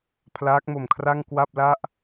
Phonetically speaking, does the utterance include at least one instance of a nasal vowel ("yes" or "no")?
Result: no